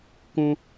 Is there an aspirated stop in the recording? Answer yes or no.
no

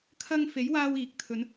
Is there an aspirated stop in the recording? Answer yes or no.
yes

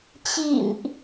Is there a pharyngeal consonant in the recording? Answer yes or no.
no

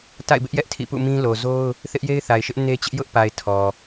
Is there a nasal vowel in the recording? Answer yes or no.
yes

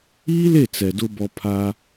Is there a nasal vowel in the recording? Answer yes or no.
no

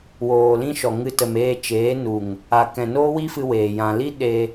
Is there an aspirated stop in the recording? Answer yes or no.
no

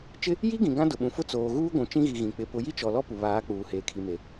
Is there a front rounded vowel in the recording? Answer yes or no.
no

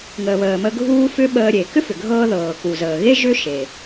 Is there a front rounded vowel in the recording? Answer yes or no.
yes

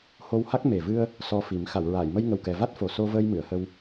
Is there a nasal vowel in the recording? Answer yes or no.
no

